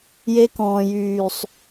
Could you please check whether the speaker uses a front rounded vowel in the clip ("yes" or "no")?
yes